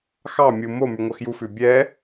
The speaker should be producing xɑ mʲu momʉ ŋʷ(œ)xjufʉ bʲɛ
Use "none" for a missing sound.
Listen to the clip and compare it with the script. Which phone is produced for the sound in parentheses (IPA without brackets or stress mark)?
œ